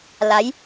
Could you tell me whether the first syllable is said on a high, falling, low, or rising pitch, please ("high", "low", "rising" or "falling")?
rising